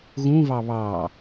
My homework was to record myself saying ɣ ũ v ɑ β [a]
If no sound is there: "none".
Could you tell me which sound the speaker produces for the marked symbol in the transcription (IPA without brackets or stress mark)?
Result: ɑ